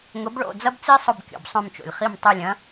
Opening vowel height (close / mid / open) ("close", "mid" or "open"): close